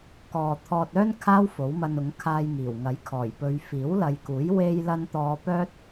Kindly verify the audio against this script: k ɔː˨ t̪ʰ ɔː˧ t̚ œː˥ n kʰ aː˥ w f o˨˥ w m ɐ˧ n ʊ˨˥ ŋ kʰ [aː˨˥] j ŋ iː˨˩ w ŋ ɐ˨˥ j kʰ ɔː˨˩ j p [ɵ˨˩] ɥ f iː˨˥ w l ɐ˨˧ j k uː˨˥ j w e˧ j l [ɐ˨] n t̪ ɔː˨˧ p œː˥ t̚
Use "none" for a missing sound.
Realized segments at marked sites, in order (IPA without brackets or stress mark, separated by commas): aː˧, ɵ˨˧, ɐ˧